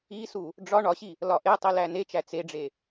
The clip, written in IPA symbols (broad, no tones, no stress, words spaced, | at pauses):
isu | ɖ͡ʐɒ ɳɒɕi | lɒʔetˤi lænet͡ʃæ t͡seɖ͡ʐe